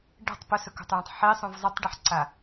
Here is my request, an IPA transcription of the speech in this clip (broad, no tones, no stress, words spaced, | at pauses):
ɖe̤tˤ pɵsɵko̤tˤjẽtˤ ħisˤũv zˤitˤɖɨħǀa